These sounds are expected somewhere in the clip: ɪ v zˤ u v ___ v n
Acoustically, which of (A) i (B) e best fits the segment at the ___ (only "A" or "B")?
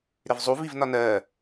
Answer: A